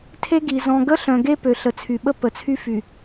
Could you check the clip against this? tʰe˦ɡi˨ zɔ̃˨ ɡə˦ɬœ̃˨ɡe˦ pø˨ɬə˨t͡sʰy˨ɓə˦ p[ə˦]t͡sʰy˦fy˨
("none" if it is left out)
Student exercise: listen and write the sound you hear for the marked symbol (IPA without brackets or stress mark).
ə˨˦